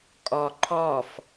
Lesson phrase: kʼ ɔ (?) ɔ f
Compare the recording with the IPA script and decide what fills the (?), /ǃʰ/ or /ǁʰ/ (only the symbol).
ǃʰ